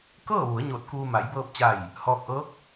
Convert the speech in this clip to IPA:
kɤː˥˨ʋu˩˧ə̯ɲoː˧˩t̚ kuː˧ ma˩˧jbɤː˧p̚t͡ɕa˧˩j | hɔː˧k̚ʔɤː˧˥k̚

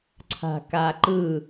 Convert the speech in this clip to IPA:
ǀʰa̤kaǃɯ

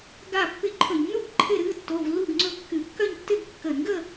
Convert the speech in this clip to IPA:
ɡa˥˧pːɪ˥˧ ǃʰɵ˧˩˧ɲnu˥˧ɡ ǃʰɪ˥˧ɾɨ˧˥˧ tːo˧˥˧vlːu˥˧ɡŋ͡ǀɵ˥˧ kːɨ˧˩˧kːœ˥˧ɲ tːɪ˥˧ɡ kːə˧˩˧nɡə˥˧

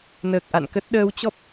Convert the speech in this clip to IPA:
nəː˨˩k̚ʔa̰˧˨nkə˦˥t̚ ɗəː˨˦wt͡ɕɔ˦˥p̚

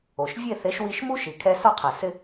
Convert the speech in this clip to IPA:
o˩ʃ vʲe˥˩θe˩˥ʃ wi˧ʃ mu˥ʃi˩ kʰɛ˧ sɔ˥˩qʰa˩ sɪ˧

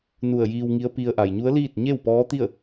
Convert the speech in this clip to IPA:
nu˧˩ə̯jiː˧wŋi˧˥ə̯pi˧ə̯ ʔa˩jɲu˧˥ə̯liː˥˨t̚ ɲe˥˨wpɔː˧˥t̪i˥˨ə̯

